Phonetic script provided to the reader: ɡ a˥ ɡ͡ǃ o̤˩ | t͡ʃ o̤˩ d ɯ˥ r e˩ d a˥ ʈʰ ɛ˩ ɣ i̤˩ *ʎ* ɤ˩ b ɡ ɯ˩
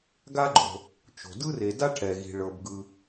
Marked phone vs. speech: incorrect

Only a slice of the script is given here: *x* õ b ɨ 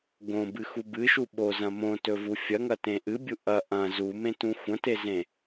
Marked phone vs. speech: incorrect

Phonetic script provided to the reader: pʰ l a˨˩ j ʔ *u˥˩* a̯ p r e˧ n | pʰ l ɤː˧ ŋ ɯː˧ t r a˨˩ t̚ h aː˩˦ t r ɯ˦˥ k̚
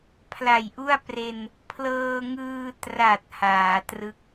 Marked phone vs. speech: correct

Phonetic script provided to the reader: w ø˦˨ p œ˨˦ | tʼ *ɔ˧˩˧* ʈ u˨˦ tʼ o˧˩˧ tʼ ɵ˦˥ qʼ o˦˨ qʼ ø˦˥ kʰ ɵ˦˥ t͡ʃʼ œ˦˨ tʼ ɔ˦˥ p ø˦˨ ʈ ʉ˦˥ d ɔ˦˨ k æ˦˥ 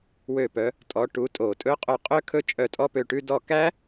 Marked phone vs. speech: incorrect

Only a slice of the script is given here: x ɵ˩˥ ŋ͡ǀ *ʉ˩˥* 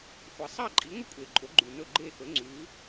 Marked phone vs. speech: correct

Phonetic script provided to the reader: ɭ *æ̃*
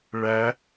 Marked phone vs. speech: incorrect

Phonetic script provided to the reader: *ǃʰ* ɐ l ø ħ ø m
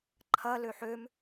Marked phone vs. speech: correct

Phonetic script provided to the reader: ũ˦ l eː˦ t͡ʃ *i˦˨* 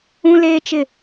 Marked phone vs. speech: incorrect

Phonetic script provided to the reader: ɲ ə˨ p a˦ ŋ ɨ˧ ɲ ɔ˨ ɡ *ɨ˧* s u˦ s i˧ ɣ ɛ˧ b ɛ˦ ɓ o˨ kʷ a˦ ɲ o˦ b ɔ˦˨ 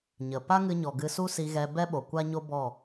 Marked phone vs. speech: correct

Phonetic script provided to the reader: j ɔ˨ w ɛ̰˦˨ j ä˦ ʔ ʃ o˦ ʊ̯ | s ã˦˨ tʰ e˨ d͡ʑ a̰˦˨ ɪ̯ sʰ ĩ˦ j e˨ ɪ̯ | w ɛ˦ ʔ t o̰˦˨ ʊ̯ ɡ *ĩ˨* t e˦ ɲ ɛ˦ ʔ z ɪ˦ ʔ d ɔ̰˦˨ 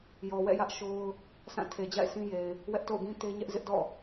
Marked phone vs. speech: incorrect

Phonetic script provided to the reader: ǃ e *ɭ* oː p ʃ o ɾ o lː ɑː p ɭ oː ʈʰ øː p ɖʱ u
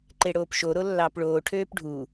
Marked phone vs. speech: incorrect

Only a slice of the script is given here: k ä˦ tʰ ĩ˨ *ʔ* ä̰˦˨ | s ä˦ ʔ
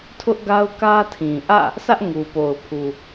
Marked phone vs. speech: correct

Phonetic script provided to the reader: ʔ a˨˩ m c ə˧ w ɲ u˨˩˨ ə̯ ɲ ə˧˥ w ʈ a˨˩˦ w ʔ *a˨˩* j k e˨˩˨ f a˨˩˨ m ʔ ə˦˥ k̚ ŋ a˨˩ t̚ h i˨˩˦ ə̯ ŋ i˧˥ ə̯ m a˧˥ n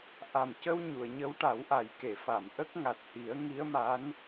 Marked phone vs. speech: correct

